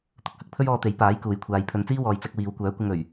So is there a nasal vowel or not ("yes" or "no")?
no